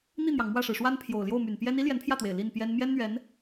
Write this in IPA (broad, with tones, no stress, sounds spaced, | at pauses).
n̪ i˥˩ n̪ j ɑ˩ ŋ m w ä˥˩ ʂ ɻ̩˩ ʂ w a˥ n pʰ j o˨˩ ʊ̯ l j o˥˩ ʊ̯ m y˨˩ n p j ɛ˥ n i˥ l j ɛ˧˥ n pʰ j ä˥˩ t̪ w e˨˩ ɪ̯ l i˥˩ n p j ɛ˥ n m j ɛ˥ n n̪ ɥ ɛ˧˥ n